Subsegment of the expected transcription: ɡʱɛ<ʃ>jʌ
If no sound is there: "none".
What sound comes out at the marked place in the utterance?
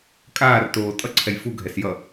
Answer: s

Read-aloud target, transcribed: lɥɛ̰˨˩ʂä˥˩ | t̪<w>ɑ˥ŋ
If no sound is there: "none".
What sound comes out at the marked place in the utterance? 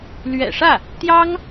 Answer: j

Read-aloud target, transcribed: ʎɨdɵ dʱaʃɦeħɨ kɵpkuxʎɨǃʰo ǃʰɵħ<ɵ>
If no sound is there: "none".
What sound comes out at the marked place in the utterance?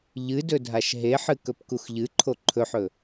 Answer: ɵ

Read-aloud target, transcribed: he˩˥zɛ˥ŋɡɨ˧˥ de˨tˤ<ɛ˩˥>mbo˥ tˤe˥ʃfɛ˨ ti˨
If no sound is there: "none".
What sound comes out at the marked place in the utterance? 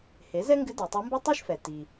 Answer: ɛ˧˥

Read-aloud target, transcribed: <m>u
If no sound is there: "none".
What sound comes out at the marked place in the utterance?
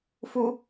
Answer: f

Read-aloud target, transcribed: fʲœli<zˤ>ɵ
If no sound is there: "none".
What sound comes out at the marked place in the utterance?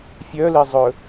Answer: zˤ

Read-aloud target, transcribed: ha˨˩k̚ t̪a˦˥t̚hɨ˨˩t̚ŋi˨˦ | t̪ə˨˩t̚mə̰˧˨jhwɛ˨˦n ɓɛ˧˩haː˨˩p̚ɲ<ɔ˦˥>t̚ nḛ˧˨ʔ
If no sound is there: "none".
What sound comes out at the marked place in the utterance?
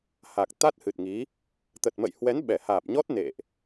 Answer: ɔ˦˥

